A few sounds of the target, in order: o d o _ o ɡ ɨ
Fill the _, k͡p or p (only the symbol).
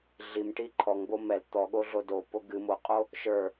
p